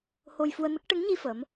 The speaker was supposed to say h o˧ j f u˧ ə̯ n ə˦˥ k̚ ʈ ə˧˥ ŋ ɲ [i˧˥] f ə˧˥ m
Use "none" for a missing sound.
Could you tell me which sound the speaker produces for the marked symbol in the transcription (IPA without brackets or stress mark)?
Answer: i˧